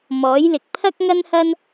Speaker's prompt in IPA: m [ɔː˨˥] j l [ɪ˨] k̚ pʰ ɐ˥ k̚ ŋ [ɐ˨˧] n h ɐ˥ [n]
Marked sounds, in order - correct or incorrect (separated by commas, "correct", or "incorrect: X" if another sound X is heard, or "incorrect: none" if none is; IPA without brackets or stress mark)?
correct, correct, incorrect: ɐ˥, correct